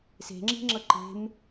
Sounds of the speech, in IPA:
se̤ŋ͡ǁi̤ŋ͡ǁɤ ǃe̤m

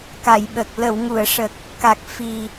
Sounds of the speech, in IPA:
ka˨˩˨jɓə˨˩k̚ lə˨˩˨wŋu˨˩˨ə̯ʂə˨˩k̚ | ka˨˩k̚ fi˨˩

